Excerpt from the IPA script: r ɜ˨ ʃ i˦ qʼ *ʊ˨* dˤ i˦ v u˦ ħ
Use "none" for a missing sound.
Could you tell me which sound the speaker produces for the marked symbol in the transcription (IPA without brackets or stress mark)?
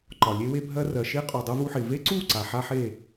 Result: u˨